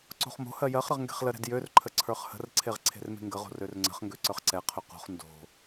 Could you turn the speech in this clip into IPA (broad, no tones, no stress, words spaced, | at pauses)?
ǀo̤χmo̤hɜ jɜχɾəʁ ŋɡe̤χləɾɛ̤d jørǃʰə ǀʰə˞χhə̤rǀʰeʁ ǀʰe̤rme̤ŋɡəʁo̤ rørŋ͡ǀə̤χŋɡø ǀə˞χǀɛqʰø qo̤χ ndo̤